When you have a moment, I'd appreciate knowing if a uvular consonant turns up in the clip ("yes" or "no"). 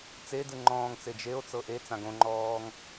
no